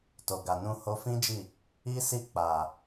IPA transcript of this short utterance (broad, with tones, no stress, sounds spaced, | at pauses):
t o˨ ɡ a˨ n ũ˧ h o˧ f ĩ˦ d͡ʒ i˦˨ | i˦ s i˦˨ k͡p a˨